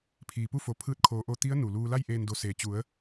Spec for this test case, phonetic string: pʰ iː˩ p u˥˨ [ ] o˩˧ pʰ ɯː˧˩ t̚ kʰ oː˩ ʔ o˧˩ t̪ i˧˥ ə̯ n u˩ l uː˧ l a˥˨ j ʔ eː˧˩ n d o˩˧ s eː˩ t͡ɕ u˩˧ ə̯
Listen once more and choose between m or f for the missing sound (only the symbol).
f